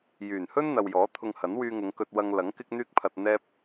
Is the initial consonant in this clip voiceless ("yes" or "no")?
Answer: no